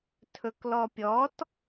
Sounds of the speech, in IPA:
tʰɵklɔpʲɔt

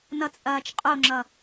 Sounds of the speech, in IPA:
nʌt͡sʼɐːt͡ʃqʼoŋ͡ǁʌ

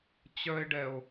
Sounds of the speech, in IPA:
t͡ɕœe̯ɖɛo̯

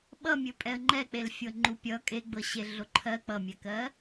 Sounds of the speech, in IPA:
ɓʌmʲɵ pʼɛə̯ŋ͡ǃɛk͡pelfʲɤ ŋ͡ǃupʲʌ kʼeɡ͡bɤɕe ɮoǃʰɜ k͡pʌmʲɛkɜ

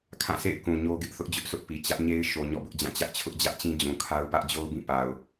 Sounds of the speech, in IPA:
kʰã˦˨sḛ˦˨ɪ̯ kũ˨ ɲo˦ɡɪ˦ʔ θʊ˦ʔd͡ʑʊ˦ʔsʊ˦ʔ pi˨ t͡ɕä˦ʔɲe˦ɪ̯ʃo˨ ɲɔ̰˦˨bʊ˦ʔd͡ʑã˦˨ t͡ɕä˦ʔt͡ɕʰʊ˦ʔd͡ʑä˦ʔt͡ɕĩ˦ d͡ʑũ˨kʰa˦ʊ̯ pä˦ʔd͡ʑo˦ʊ̯bĩ˦˨ pa˨ʊ̯

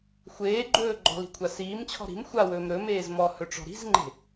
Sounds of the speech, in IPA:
xʷeːɡ͡ǃɵː ɡ͡ǃɔ̤li̤kʷʰa siːmt͡ɕʰɔ̤ ɾi̤m xʷawɵːm ɾɵmeːz mɔhɵʈ͡ʂɔ̤ ɾi̤zŋ͡ǃe̤

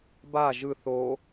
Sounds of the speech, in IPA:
ba ʒɯθ o

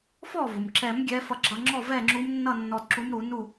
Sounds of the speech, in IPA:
fɔ˥˩vʊ˩mǁɛ˨˩˦m ɡʲɛ˧˥fʌ˧ ɡ͡ǁʌ˧ ŋ͡ǁɔ˥˩vɛ˥˩ŋ͡ǁu˧˥mnːʌ˥˩ nːɔ˧dǁu˧˥mɾu˨˩˦ nu˥˩

